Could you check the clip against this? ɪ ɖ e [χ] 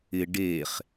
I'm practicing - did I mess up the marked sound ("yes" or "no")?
no